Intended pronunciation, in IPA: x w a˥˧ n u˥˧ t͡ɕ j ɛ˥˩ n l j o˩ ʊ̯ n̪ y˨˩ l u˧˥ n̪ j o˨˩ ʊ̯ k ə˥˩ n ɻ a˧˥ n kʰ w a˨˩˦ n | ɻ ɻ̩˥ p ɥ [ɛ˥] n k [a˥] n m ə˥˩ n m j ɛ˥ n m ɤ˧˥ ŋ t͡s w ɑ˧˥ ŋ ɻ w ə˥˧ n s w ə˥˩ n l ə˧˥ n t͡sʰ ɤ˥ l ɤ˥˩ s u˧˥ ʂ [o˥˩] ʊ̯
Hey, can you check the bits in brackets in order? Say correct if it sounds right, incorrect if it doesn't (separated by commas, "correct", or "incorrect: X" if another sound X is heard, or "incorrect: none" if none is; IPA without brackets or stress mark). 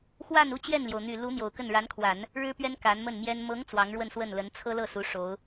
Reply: correct, incorrect: a˧˥, incorrect: o˧˥